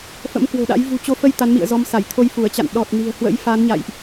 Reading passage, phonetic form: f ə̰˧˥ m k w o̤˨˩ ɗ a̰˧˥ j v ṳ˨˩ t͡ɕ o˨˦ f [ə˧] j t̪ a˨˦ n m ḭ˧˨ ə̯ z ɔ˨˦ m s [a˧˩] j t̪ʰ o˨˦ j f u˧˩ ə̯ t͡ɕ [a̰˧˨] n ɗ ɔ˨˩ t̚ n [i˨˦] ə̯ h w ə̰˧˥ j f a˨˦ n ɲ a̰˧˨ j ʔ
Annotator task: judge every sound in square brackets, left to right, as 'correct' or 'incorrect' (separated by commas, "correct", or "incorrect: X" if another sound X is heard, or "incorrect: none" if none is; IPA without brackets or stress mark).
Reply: correct, correct, correct, incorrect: i̤˨˩